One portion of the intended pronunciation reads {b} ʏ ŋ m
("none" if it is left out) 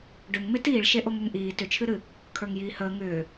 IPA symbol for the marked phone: ɖ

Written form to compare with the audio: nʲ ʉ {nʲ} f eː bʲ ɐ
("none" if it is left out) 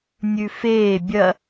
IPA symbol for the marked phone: none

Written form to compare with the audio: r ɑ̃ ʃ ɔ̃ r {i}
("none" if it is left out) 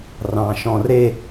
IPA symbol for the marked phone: e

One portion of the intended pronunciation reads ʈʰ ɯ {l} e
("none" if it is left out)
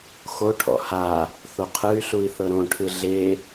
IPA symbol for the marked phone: ɮ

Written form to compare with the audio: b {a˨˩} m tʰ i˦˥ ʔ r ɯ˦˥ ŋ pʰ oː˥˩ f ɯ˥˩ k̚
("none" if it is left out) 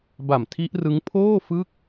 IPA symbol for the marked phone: a˨˩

